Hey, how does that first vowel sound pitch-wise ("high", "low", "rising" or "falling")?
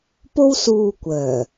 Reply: high